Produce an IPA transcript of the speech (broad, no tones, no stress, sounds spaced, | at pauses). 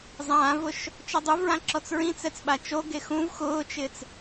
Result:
zˤ ãː v ʊ ʃ | t͡ʃ ɔ dˤ u v ɹ ã ǁ ɔ t͡s ɹ ĩ t͡s ɛ t͡s ɓ a t͡ʃ o ɡ e x ũ v x ʊː t͡ʃ ɪ t͡s